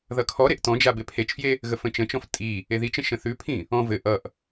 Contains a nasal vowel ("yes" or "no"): yes